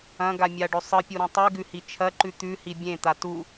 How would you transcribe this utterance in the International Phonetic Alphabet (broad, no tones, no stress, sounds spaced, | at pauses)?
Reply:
ɐ̃ ɡ a mʲ a ɖ ɵ sˤ ɨ pʲ u ɾ ũ tˤ ʉ ɡ ʉ h i t͡ʃʰ ɐ ǃ ʉ t̪ ʉ h i bʲ ẽ t̪ a t u